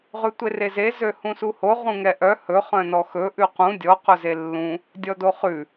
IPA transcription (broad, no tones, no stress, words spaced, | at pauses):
ʁʉtʷereze zøhũsuho ʁũŋɛʔœ hɵ χœ̃nɔxɵ ʔʉqũ dʲɔ qɵzelːũ | dʲɔdoχʉ